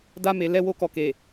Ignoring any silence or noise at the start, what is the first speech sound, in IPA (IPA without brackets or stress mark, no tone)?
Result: d